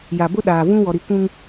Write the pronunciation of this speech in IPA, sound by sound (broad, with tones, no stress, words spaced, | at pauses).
ja˨bʊ˦ɗaː˨vũ˦ wɔ˨ɾi˨kʷũ˦ŋ